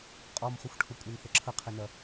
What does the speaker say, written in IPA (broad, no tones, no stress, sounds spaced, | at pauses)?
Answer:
qʼ ɔ m χ ʊ xʷ ʈʰ ʊ kʷʼ e n θ ə ǁʰ ə qʰ ɪ n ɐ